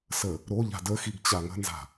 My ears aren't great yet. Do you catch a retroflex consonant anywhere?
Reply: no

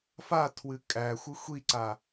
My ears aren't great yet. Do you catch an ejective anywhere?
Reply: yes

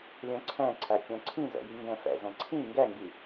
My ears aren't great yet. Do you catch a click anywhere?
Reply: yes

